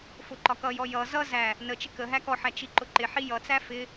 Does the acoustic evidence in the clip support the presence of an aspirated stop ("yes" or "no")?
no